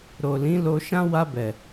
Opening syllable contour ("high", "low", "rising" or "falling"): low